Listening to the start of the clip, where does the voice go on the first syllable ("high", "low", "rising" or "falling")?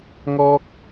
high